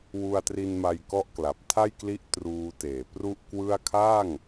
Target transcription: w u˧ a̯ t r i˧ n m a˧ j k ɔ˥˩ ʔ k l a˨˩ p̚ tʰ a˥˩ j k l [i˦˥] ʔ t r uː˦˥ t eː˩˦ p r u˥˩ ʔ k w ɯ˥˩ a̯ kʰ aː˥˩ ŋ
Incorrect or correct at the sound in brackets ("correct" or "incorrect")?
correct